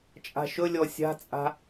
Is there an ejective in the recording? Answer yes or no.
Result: yes